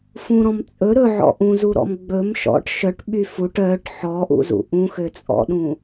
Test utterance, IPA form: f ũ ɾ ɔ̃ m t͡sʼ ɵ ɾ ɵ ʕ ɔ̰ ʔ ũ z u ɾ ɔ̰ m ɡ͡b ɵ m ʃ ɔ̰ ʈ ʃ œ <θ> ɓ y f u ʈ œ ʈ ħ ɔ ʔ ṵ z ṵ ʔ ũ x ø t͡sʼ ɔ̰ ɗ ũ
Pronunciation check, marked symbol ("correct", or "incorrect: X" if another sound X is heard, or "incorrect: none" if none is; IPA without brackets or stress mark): incorrect: ʈ